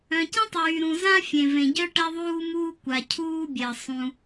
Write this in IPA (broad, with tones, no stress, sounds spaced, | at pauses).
œ̃˩ c ə̃˥ tˤ yː˩ ɾ ũ˩ z ã˥ fʲ ẽ˩ v ẽ˩ ɟ œ˥ ʈ ɛ˥ ðˤ uː˥ m uː˥ kʷ a˩ cʰ uː˥ bʲ ɛ˩ sˤ ũ˩